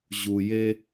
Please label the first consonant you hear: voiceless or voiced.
voiced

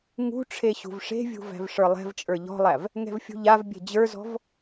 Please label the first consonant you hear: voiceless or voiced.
voiced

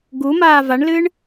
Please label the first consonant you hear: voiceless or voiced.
voiced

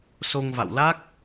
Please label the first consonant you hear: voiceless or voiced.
voiceless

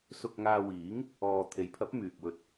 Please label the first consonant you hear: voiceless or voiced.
voiceless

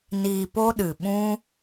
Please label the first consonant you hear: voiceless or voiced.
voiced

